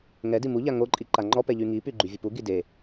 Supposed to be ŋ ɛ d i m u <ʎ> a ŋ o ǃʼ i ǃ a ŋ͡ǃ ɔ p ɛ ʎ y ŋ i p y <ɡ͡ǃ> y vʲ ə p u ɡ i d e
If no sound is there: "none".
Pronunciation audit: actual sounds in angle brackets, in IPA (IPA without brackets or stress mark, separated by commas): ʎ, ɡ͡ǃ